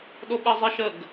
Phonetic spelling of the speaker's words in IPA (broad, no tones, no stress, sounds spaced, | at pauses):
ɗ o ɓ e zˤ ɛ ʃ ə ɡ